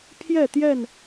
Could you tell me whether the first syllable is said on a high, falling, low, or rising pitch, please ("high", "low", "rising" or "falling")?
falling